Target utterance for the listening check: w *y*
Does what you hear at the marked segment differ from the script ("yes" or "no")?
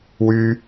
no